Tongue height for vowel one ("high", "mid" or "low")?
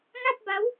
low